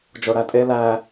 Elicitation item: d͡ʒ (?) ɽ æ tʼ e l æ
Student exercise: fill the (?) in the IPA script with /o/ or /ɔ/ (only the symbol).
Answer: o